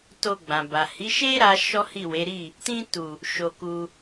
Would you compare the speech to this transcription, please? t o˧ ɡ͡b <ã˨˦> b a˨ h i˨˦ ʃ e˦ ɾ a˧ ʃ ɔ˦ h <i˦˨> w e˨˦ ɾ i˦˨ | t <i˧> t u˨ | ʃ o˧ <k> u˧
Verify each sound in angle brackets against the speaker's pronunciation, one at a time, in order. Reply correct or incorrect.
incorrect, correct, incorrect, correct

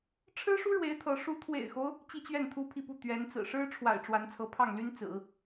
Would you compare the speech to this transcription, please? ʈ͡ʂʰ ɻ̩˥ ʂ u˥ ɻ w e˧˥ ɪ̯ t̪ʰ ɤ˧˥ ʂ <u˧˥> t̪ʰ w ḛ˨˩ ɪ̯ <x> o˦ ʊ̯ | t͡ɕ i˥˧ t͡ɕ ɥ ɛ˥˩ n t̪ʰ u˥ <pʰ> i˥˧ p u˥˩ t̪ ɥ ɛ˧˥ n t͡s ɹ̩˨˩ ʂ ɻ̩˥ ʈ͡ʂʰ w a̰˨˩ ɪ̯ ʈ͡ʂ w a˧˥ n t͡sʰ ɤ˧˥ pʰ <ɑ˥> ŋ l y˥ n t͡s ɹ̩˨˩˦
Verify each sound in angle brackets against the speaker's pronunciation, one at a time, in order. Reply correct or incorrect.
correct, correct, correct, incorrect

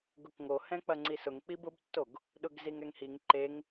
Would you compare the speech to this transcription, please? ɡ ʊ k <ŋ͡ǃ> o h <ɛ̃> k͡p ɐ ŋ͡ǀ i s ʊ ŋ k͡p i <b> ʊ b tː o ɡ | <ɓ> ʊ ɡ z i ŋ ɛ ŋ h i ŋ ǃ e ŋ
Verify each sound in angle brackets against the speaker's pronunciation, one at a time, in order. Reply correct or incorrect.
incorrect, correct, correct, incorrect

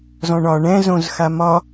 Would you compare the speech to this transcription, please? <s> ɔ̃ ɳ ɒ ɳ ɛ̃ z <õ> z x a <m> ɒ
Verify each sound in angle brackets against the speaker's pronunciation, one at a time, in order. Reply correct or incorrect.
incorrect, correct, correct

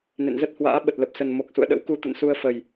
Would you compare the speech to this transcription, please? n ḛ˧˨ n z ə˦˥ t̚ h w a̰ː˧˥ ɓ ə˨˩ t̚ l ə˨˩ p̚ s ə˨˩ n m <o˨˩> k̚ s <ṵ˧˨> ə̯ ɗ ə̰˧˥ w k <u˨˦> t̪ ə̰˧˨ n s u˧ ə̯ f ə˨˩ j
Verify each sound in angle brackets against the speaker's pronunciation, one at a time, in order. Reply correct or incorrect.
correct, correct, correct

